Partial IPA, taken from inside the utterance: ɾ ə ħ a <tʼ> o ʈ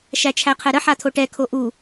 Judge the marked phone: incorrect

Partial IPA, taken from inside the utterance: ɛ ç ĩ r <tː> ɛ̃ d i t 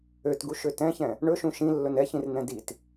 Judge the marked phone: incorrect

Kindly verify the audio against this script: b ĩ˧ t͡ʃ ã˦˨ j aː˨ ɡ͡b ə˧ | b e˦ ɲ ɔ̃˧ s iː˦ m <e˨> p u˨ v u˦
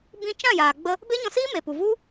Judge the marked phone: correct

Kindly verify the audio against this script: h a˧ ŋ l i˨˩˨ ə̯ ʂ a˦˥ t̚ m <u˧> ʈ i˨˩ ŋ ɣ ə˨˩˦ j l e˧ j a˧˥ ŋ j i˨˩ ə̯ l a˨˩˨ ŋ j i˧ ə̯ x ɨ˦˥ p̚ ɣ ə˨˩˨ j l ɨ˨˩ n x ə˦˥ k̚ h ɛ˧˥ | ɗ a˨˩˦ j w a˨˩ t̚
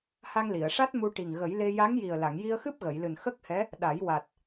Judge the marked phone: correct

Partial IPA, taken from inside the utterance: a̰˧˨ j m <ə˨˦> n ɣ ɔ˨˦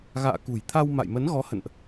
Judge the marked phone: correct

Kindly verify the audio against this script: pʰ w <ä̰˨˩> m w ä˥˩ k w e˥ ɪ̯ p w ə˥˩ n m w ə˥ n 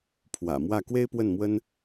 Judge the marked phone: correct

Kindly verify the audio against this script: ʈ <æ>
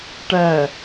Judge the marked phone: correct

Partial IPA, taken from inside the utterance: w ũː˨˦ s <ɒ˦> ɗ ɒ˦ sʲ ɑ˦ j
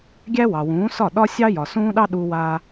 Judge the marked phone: incorrect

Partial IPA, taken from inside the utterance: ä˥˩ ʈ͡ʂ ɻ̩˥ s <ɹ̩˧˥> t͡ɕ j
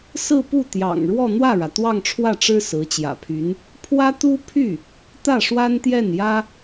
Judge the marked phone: correct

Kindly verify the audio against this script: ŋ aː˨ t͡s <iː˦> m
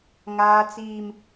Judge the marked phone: incorrect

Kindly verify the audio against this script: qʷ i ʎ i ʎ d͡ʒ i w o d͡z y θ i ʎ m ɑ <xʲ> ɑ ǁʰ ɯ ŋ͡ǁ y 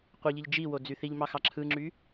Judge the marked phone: incorrect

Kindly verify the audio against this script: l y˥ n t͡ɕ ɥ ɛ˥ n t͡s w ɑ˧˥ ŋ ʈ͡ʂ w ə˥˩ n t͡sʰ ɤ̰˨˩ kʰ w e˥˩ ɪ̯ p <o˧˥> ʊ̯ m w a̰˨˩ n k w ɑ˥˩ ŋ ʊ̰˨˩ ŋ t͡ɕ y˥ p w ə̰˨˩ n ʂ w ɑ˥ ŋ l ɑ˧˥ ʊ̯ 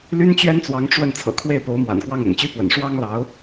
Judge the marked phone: correct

